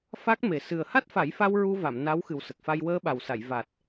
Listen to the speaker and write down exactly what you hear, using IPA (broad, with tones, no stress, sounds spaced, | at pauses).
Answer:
f a˦˥ k̚ m e˨˩ s ɨ˨˩ ə̯ h a˦˥ t̚ f a˨˩˦ j f a˧ w ɹ u˧ v a˨˩˨ m n a˧˥ w x ɨ˨˩ w s ə˨˩ k̚ f a˧ j w əː˧ ɓ a˨˩ w s a˨˩˨ j v a˨˩ t̚